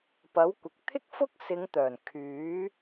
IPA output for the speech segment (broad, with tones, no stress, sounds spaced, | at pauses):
p ɐ˨˥ w kʷ ɪ˨ k̚ t̪ʰ ɪ˥ k̚ f ʊ˥ k̚ s ɪ˨˧ ŋ t̪ œː˨˩ n kʰ yː˨˥